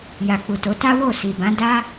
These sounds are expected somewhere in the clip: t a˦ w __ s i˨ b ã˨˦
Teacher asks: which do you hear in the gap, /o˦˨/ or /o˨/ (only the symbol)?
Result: o˦˨